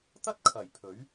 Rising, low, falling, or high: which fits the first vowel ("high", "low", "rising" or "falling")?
high